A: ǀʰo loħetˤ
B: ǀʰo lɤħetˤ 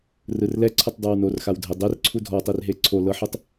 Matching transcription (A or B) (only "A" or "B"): B